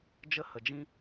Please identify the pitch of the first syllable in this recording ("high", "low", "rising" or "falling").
high